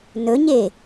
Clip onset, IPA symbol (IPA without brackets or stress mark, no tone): n